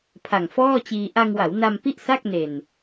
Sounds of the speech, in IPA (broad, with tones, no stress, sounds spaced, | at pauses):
pʰ a˨˩ ŋ f ɔː˥˩ t͡ɕ iː˧ ʔ a˧ ŋ w a˩˦ w n a˧ m p i˥˩ ʔ s a˥˩ k̚ n e˨˩ n